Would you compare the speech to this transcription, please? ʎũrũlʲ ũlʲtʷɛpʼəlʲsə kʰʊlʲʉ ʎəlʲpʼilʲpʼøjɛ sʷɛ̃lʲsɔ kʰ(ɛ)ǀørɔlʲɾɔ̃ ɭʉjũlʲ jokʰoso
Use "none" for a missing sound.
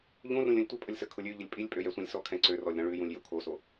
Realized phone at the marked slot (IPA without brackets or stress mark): ɛ̃